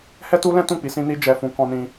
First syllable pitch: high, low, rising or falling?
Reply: high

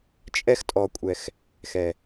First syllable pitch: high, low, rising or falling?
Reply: high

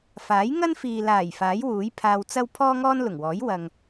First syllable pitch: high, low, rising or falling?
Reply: rising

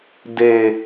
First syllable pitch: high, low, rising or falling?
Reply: low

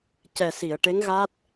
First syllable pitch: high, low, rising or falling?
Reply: low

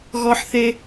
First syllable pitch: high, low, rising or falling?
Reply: high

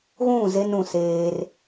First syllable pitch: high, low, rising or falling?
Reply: falling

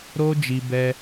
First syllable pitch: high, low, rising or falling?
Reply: high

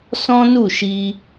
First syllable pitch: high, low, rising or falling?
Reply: high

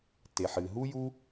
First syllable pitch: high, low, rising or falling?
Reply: low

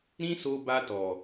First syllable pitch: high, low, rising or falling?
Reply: high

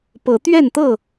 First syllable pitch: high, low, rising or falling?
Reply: rising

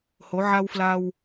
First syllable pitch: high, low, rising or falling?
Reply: rising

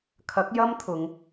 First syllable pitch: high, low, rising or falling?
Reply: rising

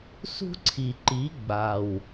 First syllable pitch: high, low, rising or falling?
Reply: high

